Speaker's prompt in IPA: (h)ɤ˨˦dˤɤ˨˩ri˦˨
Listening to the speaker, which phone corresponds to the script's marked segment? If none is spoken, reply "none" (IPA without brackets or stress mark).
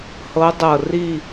h